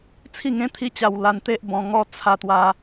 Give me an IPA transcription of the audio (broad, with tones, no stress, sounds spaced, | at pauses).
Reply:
t͡sʰ i˥˧ ŋ ẽ˦ t̪ʰ i˦ t͡ɕ a˧ w l a˧ n t̪ e˦ ʔ b ɔ̃˧ ŋ ɔ˦ t͡sʰ a˧ t̪ w a˧